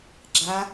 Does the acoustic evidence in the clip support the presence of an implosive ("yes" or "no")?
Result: no